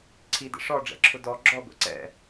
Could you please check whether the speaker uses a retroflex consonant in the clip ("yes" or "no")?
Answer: yes